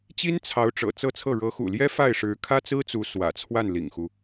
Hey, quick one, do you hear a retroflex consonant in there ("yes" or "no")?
yes